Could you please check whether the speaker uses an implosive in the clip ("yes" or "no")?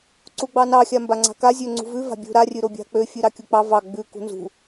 no